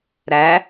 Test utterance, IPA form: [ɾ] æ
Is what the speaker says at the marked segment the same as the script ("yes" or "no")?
yes